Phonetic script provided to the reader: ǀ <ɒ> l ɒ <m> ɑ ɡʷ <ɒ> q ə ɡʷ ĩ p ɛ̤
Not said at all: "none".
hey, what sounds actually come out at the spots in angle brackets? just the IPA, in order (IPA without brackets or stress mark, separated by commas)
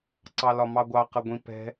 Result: ɑ, m, ɑ